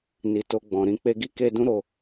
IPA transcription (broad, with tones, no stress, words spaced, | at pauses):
ni˨ to˧ɡ͡bɔ̃˨ ɾĩ˧k͡pe˧ɡi˦ ke˧ dũ˦ ɾo˧